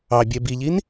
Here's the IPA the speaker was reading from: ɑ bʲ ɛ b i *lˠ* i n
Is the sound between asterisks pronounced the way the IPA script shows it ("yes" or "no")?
no